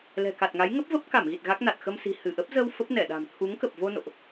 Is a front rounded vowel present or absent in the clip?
absent